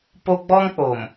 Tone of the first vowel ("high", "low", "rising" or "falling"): high